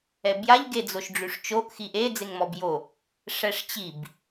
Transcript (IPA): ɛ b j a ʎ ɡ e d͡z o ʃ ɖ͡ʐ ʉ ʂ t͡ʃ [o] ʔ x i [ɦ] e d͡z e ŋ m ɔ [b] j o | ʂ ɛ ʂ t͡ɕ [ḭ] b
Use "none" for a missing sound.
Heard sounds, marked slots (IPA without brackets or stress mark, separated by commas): o, ʔ, b, i